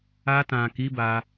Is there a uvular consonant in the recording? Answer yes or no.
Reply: no